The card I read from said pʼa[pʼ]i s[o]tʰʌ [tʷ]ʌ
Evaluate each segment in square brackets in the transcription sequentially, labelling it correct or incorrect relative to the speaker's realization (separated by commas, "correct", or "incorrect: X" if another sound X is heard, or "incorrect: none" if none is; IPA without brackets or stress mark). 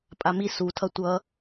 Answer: incorrect: m, incorrect: u, correct